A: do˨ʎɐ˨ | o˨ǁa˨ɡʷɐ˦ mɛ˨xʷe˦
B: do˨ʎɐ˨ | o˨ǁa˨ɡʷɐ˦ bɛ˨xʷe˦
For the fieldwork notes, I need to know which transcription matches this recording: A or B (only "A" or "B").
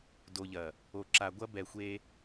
B